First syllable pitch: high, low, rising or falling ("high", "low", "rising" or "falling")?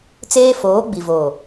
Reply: high